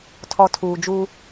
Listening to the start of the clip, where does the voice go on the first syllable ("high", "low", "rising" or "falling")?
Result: low